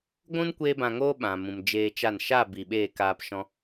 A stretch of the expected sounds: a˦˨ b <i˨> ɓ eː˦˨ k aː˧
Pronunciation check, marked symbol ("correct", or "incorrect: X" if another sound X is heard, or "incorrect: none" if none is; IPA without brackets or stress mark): correct